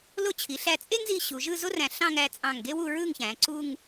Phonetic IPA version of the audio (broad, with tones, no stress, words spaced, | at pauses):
lo˥˧t͡ɕʰi˩˧ɬæ˧ t͡sʼe˥ŋzi˧ ɕu˩˧ʒɯ˥˧ zo˥ræ̃˧˩ ɬɑ̃˥˧ ŋæ˧t͡sʼɑ̃˧˩ŋɡe˥ wu˥˧ɹɯ˥˧ŋçæ̃˩˧ ǀu˥˧ŋ